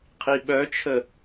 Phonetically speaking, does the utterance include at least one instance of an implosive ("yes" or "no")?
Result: yes